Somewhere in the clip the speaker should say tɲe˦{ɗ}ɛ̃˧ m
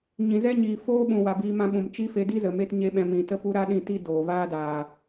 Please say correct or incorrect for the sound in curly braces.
incorrect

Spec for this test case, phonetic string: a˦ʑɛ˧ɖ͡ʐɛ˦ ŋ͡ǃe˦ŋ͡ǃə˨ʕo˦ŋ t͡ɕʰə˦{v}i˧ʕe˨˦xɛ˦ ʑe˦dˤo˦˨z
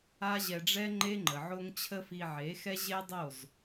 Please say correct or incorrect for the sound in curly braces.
incorrect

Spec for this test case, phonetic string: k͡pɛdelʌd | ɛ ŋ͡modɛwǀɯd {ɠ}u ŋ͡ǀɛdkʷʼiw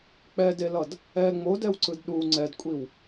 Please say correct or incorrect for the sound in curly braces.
incorrect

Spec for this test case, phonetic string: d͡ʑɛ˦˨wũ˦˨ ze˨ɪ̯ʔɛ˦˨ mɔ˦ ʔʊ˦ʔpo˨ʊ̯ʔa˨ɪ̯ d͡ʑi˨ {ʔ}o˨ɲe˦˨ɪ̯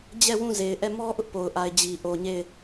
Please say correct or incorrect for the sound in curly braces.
correct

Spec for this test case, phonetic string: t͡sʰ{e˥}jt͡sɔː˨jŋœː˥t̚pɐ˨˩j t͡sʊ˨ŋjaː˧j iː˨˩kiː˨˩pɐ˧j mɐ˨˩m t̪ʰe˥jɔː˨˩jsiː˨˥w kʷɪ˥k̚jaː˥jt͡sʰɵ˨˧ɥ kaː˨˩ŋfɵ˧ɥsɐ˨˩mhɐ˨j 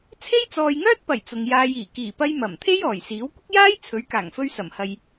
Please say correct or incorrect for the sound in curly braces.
correct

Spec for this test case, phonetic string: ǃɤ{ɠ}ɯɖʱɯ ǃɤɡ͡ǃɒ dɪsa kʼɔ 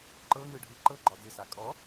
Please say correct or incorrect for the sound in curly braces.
incorrect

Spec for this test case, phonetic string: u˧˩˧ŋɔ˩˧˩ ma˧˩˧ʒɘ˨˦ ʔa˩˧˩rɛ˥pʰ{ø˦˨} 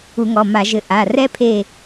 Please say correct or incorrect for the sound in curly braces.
incorrect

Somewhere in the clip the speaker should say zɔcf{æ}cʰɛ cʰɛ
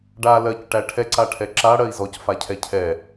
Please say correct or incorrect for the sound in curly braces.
incorrect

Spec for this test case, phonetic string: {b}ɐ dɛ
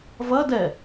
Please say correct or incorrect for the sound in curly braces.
incorrect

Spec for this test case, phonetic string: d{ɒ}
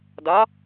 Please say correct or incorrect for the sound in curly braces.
correct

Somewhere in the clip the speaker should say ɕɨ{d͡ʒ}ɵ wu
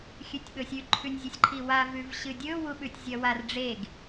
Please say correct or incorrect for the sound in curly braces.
incorrect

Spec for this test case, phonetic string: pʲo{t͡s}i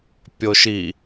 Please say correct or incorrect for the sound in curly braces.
incorrect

